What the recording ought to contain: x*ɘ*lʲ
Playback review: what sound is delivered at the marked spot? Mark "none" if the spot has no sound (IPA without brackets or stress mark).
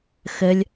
ɘ